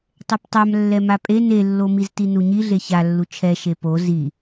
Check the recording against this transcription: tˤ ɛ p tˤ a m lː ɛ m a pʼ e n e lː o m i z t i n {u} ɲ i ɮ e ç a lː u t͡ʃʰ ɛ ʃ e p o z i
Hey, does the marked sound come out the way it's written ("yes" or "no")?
yes